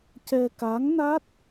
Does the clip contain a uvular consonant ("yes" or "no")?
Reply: no